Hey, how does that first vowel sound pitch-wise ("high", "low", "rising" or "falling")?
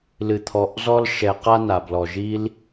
low